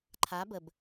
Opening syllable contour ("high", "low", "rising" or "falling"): rising